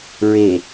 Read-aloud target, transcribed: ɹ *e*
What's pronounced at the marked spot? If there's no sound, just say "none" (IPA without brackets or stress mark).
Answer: e